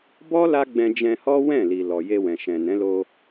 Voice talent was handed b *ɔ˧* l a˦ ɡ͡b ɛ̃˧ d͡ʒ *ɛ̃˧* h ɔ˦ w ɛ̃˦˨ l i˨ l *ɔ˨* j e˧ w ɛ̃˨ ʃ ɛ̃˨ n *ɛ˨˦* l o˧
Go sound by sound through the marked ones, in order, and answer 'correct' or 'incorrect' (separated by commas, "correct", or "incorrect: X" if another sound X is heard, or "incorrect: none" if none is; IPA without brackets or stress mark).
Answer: incorrect: ɔ˦, correct, correct, incorrect: ɛ̃˨˦